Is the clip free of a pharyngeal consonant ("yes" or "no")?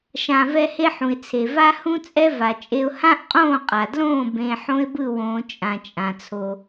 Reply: no